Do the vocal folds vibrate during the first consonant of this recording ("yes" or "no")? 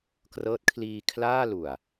no